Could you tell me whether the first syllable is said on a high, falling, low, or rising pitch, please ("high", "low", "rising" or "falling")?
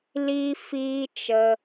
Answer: high